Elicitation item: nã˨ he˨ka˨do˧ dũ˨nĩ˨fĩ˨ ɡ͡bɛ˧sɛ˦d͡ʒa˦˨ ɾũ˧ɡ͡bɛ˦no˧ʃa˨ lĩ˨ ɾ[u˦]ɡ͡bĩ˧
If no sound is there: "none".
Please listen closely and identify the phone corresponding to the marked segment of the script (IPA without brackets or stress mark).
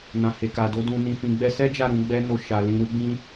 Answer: u˧